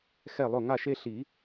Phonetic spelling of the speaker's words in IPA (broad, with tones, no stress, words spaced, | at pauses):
xɛ˥˩lˠʊ˥˩ ŋa˥˩ʃe˥ ɬi˨˩˦